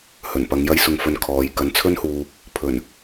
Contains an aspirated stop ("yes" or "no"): yes